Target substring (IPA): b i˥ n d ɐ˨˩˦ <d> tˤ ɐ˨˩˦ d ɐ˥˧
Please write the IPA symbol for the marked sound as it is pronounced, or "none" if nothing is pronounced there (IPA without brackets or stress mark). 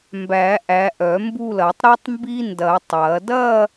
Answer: none